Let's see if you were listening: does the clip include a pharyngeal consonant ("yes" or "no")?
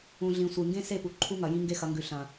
no